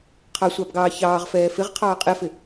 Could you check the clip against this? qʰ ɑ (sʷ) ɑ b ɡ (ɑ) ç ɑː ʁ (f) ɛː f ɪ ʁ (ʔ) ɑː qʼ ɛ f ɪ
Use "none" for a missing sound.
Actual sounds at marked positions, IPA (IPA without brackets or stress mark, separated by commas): sʷ, ɑː, f, qʰ